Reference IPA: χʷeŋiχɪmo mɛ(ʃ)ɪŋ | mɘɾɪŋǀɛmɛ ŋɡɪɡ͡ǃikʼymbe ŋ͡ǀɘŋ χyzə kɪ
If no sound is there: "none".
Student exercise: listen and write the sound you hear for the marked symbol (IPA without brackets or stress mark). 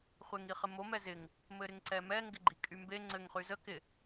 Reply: z